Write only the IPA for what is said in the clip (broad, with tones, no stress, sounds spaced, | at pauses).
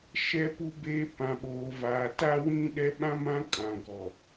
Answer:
ʃ ɛ˨ p u˨ b eː˨ p ã˨ ɓ oː˨ v aː˨ t a˦ w ĩ˦ ɗ ɛ˦ ɓ ã˦ m ã˦ kʼ ã˨ ɡ ɔ˨